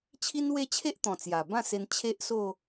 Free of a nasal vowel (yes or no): no